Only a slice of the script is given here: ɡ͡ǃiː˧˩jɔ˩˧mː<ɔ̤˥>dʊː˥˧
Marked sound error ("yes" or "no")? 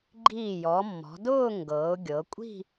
yes